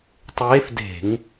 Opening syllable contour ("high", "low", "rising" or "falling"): rising